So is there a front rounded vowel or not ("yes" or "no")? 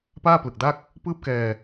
no